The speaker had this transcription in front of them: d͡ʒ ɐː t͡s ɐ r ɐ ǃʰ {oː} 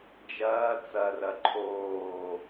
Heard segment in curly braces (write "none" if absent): oː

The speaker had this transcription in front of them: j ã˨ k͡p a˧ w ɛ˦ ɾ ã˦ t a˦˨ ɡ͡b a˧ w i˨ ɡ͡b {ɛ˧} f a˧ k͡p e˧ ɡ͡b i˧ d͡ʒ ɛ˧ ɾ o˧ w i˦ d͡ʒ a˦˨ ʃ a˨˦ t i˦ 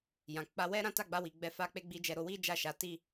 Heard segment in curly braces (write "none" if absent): ɛ˧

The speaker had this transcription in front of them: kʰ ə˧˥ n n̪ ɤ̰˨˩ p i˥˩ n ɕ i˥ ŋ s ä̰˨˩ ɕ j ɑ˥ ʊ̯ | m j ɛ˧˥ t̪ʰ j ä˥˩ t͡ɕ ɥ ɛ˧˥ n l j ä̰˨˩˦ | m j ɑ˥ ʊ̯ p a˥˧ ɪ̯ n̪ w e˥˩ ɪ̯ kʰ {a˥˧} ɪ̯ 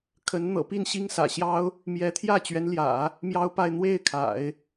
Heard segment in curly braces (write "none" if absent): a̰˨˩˦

